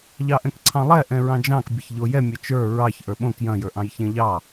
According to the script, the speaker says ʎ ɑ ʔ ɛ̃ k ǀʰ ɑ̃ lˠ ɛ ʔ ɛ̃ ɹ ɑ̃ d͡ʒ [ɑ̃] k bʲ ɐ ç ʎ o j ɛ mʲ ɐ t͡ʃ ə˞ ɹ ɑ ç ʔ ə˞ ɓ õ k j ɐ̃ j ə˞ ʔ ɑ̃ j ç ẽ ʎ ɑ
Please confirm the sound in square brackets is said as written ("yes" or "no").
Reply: yes